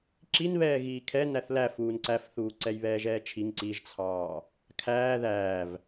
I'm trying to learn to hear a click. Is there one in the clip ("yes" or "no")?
yes